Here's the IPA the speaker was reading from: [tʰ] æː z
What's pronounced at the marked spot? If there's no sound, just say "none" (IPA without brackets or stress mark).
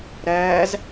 ɾ